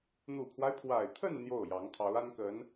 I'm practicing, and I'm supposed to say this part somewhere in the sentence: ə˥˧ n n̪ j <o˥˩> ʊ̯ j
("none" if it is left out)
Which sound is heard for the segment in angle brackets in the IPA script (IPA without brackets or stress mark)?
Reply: o˥˩